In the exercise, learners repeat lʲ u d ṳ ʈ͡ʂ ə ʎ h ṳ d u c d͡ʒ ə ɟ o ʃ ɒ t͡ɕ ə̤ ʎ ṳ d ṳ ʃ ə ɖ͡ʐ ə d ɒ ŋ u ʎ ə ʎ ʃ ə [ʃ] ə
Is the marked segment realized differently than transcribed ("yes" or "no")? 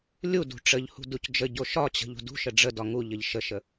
no